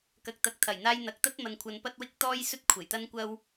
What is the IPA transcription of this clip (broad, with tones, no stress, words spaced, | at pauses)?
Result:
kɐ˧k̚t̪ɐ˧k̚ t̪ʰɐ˨˩jn̪aː˧j n̪ɐ˨˥k̚t̪ɐ˥t̚mɐ˧nkʷʰɐ˧n pɐ˥t̚wɪ˥k̚ t̪ɔː˥jsɵ˥t̚ kʷʰe˨˩jt̪ɐ˥nkʷɐ˥w